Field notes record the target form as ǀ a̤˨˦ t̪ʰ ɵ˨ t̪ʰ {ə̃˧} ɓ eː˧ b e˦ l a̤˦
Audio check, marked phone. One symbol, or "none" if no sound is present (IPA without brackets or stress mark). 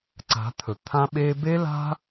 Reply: ã˧